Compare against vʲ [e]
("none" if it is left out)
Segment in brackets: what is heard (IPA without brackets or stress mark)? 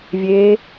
eː